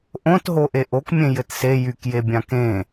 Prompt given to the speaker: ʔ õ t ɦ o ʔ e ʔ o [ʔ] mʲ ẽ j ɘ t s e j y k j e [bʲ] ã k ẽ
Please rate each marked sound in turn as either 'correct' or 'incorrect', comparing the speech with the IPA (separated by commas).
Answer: incorrect, correct